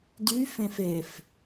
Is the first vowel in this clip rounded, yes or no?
yes